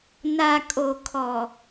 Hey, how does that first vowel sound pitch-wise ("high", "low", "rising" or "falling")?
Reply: low